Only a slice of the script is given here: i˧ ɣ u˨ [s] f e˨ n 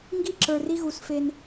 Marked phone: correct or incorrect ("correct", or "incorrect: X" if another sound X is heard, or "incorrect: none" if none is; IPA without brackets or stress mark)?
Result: correct